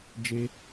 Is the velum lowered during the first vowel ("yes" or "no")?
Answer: no